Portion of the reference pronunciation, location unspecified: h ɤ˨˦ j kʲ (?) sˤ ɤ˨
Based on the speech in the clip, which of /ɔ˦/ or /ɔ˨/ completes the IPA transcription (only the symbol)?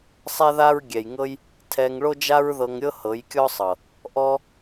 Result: ɔ˦